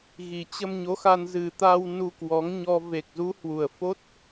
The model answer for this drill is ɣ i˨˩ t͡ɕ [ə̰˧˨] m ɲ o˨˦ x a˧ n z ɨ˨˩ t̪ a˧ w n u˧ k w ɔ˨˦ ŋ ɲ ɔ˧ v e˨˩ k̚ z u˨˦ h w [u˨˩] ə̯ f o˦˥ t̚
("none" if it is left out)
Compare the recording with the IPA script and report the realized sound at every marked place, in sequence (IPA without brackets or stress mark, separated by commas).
ə˧, u˨˩